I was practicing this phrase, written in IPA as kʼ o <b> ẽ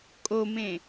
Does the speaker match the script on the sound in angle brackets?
no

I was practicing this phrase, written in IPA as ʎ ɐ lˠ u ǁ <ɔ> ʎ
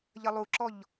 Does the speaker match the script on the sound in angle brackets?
yes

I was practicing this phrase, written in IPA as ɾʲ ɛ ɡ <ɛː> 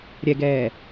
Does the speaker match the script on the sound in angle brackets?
yes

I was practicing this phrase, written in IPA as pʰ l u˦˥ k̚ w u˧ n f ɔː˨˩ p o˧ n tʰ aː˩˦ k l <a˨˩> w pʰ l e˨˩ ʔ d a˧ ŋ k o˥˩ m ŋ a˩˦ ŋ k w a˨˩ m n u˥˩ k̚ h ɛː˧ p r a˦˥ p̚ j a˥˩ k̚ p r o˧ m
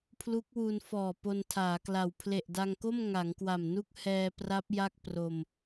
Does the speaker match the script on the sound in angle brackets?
yes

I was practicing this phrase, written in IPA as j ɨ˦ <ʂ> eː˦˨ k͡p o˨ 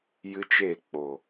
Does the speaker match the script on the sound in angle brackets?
no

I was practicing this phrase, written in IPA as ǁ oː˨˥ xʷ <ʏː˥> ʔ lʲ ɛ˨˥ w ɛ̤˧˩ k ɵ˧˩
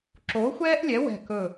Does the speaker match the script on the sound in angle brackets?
no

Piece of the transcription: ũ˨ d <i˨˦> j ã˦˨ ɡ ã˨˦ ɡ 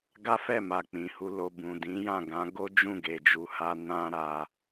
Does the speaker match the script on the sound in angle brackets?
no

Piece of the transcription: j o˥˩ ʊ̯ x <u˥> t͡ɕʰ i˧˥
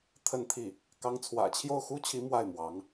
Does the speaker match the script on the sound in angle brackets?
yes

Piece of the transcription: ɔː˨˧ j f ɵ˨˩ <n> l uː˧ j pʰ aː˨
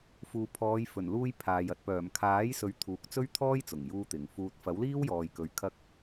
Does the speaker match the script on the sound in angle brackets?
yes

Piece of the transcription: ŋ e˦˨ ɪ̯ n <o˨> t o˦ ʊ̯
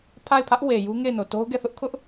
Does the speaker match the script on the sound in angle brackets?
yes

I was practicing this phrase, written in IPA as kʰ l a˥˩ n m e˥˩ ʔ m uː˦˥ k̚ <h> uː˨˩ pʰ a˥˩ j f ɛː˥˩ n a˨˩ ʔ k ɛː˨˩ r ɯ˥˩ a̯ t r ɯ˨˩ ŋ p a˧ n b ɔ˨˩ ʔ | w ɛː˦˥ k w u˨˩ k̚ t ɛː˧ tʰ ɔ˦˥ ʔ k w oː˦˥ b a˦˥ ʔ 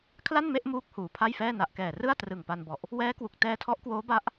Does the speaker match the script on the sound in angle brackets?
yes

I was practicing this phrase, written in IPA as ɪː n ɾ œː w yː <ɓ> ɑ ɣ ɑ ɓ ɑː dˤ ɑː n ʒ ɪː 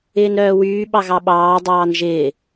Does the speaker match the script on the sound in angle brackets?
yes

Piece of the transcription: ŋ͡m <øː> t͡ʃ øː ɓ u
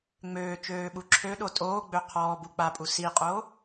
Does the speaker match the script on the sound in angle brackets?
yes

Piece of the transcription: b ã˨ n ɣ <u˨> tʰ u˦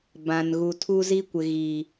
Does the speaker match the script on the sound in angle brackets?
yes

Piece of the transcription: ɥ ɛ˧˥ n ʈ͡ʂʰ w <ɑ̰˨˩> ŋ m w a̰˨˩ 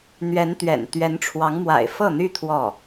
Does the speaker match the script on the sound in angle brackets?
no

